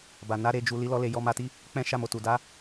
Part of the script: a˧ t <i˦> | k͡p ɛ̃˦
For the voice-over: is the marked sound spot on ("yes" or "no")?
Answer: yes